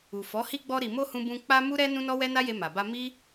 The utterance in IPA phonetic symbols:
u˨ fɔ˨˦ hi˧ɡ͡bɔ˧ ɾi˨mo˧ hũ˧bũ˧ k͡pa˧ mu˦ɾɛ˦ nũ˦nɔ˦wɛ˦ na˦je˧ma˨ ba˧mi˦

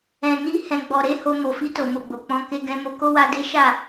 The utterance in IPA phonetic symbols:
ɛ̃˨ni˧ hɛ̃˨ ɡ͡bɔ˨ɾe˨˦ ho˧ mo˨fi˧to˨ mo˨ɡ͡bo˨k͡pɔ̃˨˦ ke˧ɡɛ̃˧mo˧ ko˦wa˧de˦ ʃa˦˨

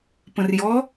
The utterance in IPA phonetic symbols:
pə̃rjɔ

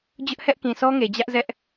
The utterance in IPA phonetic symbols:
d͡ʑʊ˦ʔhɛ˦ʔ kĩ˨sɔ˦ŋe˨ d͡ʑä˦ʔzɛ˦ʔ

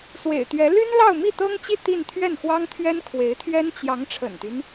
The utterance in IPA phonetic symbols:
swḛ˨˩ɪ̯t̪ɥɛ˧˥ ly˥nlɑ˥˧ʊ̯mi˥˩ t̪ɤ˥ŋt͡ɕi˥˧ t̪i˥˧n t̪ʰɥɛ˥˩n xwɑ˥ŋt̪ʰɥɛ˥nkʰwe˧˥ɪ̯t̪ʰɥɛ˥n t͡ɕjɑ˧˥ŋ ʈ͡ʂʰə̰˨˩nt̪y˦n

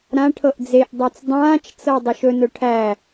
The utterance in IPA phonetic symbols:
ɾã ʈʰɤʔd͡zeʔdˤæt͡s dˤãːt͡ʃt͡sɤ dˤuʃɵnɵ ʈʰæ

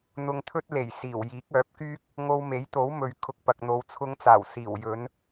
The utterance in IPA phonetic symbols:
n̪ʊ˧ŋt̪ʰɵ˥t̚ le˨˩j siː˨˩w jiː˨˥k̚œː˨˥p̚kyː˥k̚ | ŋo˧wme˨˥jt̪o˨˥wmɵ˨ɥ kʰʊ˧k̚ pɐ˨k̚n̪o˨wt͡sʰʊ˧ŋt͡saː˨˩w siː˨˩wjɵ˨˥n

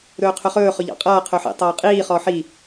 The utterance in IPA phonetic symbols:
ɾɵːqʰɵχɵː χɵʎɑ̰qʼʌː qʰɵħḭ tˤʌːqʼiː χɔħi

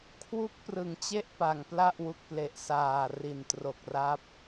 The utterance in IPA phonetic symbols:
kʰwu˦˥k̚prɯ˩˦ŋt͡ɕe˥˩ʔ pa˨˩ŋpla˥˩ʔ wu˨˩k̚ple˨˩ʔ saː˨˩ri˨˩n tro˨˩k̚ra˦˥p̚

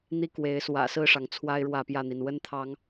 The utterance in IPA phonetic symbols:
n̪i˦kwe˨˦ɪ̯swä̰˨˩ sɹ̩˥˨ʂɑ˩ŋ t͡sʰwa˦ɪ̯ɻwä˥˨pjä˥˨n̪i˩n wə˦nt̪ʰɑ˨˦ŋ

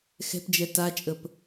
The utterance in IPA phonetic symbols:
xɛ̤pd͡ʒɛ tat͡ʃʼəp

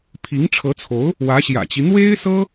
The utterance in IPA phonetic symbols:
pʰi˧˥ŋʈ͡ʂʰɤ˧˥t͡sʰo˧˥ʊ̯ | wä˧˥ɕjä̰˨˩t͡ɕi˦ n̪we˥ɪ̯sɤ˥

